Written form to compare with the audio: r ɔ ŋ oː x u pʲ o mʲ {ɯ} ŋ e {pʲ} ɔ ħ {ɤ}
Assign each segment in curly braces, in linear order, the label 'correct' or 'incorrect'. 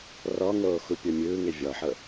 incorrect: ɯː, incorrect: vʲ, correct

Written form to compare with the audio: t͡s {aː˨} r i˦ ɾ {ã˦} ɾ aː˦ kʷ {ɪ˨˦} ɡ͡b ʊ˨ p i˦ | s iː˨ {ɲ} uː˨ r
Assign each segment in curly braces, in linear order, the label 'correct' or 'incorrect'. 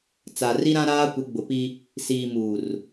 incorrect: a˨, correct, correct, incorrect: m

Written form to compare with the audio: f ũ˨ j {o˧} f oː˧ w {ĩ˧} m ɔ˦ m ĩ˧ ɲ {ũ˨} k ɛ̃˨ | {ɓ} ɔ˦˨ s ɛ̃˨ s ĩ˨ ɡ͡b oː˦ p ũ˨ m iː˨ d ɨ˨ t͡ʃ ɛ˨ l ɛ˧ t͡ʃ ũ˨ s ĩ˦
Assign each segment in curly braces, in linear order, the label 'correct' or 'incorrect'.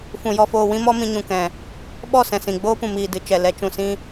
incorrect: ɔ˧, incorrect: ĩ˦, correct, correct

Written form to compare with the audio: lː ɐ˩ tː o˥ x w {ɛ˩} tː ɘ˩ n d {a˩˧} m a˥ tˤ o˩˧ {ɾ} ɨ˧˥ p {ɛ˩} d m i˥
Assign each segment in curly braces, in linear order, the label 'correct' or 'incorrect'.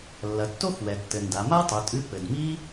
correct, correct, incorrect: tʼ, incorrect: ɘ˩

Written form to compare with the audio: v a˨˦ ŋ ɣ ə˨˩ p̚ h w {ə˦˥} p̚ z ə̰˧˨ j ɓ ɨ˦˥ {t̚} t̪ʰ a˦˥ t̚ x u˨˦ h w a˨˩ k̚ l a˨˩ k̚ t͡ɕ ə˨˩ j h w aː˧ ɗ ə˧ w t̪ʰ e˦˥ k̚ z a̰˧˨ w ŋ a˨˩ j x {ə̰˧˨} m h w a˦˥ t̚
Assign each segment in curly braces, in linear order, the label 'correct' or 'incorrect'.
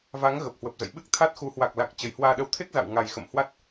incorrect: ə˨˩, incorrect: k̚, correct

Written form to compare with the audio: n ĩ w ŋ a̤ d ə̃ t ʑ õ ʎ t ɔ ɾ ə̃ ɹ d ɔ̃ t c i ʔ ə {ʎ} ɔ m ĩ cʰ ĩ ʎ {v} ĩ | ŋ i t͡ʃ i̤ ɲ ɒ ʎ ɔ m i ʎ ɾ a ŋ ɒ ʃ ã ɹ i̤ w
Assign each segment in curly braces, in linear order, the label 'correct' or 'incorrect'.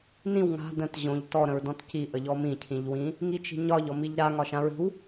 correct, incorrect: w

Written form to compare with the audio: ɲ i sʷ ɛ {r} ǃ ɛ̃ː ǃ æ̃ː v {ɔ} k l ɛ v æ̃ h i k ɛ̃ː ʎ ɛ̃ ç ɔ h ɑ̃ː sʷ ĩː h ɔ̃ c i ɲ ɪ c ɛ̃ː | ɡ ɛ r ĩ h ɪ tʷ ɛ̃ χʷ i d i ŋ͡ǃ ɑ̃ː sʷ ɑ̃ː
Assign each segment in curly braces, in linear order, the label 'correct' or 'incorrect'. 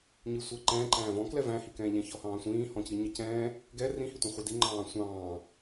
incorrect: none, incorrect: ɔ̃

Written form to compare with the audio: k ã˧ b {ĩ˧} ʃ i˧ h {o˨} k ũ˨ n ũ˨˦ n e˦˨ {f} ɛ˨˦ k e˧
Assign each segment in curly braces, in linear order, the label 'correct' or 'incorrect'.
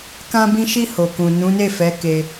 correct, correct, correct

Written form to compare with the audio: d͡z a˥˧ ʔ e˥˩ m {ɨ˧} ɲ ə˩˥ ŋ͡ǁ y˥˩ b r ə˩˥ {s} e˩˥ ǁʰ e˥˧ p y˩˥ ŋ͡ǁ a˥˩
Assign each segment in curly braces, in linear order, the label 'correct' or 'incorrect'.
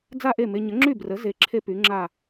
incorrect: e˧, incorrect: z

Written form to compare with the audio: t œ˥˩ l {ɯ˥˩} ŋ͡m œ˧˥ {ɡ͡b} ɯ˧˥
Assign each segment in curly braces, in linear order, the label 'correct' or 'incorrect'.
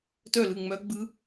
correct, correct

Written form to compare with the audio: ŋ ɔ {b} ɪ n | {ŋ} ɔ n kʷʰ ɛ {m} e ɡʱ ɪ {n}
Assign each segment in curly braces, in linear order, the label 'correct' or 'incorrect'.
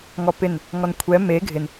incorrect: p, correct, correct, correct

